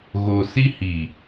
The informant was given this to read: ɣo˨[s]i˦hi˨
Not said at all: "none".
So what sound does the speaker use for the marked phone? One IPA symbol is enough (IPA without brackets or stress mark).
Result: s